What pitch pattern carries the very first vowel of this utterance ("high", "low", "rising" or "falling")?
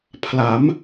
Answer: rising